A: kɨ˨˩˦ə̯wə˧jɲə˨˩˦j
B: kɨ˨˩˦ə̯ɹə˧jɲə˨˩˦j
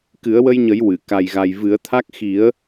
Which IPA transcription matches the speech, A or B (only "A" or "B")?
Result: A